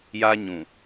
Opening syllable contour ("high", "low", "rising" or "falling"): high